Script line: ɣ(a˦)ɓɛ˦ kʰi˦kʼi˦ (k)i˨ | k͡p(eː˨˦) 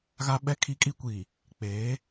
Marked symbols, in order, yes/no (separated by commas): yes, no, yes